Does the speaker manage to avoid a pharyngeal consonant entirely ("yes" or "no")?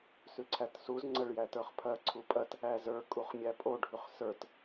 yes